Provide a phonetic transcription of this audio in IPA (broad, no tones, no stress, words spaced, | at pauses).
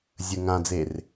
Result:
zʲə ŋãd͡zer